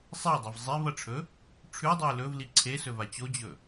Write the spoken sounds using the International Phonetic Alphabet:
sˤ e ʊ̯ dˤ i v zˤ i v ɐ ʈ͡ʂʰ ɵ | ʈ͡ʂʰ ʉ dˤ ʉ ɪ̯ l ɵ v l i ǀʰ e s ɵ v a t͡ɕ o d͡ʑ ɵ

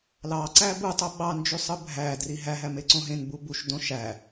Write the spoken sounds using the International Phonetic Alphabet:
l ɑ ǀ æ b u tˤ o ɓ ɑ n d͡ʒ y sˤ ɯ bʱ æ d r i ɦ æ ɦ æ m e ǀ õ ɦ ẽ n b u b u ʃ d õ ʃ æ

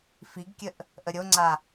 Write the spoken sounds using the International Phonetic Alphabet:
f i ɡ kʲ ə ʔ | ʔ ə ɾʲ o ŋ͡ǀ a

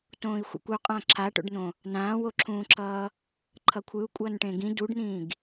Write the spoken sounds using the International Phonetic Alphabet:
t õː i̯ xʷ ɛ̰ kʷ o qʼ ã ǁʰ a ʈ o̰ ɖ n̪ õ | n ãː w o ǁʰ ũː ǁʰ ʌː | ǃʰ ʌ kʷʰ ɯ u̯ kʷʼ ʌː n ʈ ẽ ɡ ĩ d u ɖ n̪ ĩː ɡ

